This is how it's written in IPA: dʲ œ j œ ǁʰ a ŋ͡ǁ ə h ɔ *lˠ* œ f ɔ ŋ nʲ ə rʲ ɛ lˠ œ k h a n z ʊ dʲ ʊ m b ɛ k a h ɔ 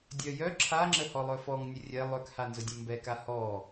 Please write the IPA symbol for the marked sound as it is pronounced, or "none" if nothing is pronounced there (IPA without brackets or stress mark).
lˠ